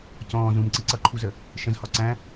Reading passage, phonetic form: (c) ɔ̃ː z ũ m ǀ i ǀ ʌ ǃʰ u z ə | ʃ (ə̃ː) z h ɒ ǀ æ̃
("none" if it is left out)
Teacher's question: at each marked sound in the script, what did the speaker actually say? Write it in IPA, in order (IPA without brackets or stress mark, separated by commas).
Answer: c, ə̃